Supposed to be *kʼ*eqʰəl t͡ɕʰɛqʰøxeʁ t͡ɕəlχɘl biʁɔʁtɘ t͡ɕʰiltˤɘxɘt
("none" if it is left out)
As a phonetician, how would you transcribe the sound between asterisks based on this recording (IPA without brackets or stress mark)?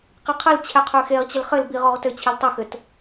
q